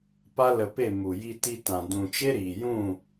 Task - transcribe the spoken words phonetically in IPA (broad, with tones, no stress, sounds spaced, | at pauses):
p a˦ l ə˧ p e˦˨ m u˨ j i˧ t i˧ t ã˨ d ũ˨ t͡ʃ e˦ ɾ iː˨ j ũ˦˨